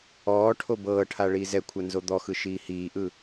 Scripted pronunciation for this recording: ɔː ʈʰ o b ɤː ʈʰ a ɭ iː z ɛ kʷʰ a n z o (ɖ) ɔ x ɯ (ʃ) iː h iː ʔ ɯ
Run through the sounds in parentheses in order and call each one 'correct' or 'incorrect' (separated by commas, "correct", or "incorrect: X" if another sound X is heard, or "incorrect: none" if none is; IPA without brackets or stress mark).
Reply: incorrect: d̪, correct